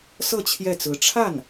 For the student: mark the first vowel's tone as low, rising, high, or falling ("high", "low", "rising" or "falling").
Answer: falling